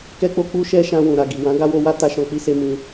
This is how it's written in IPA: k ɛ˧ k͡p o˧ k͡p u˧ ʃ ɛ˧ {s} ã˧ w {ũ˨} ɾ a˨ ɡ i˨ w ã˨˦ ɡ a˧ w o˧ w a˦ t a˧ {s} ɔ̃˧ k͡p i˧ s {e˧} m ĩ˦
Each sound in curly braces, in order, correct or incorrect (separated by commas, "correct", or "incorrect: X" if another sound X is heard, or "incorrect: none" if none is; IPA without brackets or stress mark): incorrect: ʃ, correct, incorrect: ʃ, correct